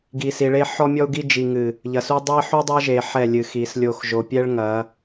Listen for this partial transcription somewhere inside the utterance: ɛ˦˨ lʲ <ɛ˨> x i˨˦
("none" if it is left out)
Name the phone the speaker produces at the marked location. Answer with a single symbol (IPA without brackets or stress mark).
ɨ˨